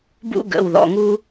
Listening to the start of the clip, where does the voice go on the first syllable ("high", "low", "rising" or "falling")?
high